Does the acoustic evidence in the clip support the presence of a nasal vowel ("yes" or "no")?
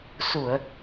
no